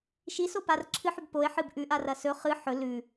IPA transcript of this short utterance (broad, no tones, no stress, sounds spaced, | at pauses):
ʃ i s o p a r ǁʰ ɨ ħ ʉ b p o e̯ ħ ɨ b ʔ ʉ ʔ a r ɐ s ɵ χ ɨ ħ ɵ l ʉ